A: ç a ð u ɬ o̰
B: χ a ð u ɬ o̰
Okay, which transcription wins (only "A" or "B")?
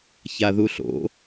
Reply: A